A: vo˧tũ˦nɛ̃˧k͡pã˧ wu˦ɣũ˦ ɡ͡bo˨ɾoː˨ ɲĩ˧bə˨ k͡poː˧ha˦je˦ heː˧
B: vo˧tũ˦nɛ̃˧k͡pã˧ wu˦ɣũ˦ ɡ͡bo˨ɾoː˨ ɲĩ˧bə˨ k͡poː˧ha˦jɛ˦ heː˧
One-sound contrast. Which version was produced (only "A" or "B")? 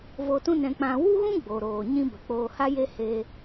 A